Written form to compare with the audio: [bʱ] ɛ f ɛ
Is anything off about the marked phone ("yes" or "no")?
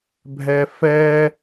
no